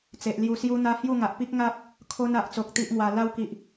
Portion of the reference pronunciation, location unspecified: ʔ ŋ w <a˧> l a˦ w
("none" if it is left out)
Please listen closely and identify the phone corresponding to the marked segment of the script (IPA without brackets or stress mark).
a˧